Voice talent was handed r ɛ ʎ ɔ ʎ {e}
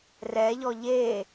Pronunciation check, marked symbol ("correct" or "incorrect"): correct